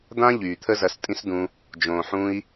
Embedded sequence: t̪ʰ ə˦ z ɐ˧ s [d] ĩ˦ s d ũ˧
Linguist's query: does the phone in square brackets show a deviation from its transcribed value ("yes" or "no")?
yes